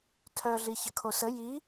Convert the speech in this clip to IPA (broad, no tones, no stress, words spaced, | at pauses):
tʰœ ɮiçəkʰosə ji